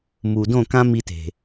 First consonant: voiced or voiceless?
voiced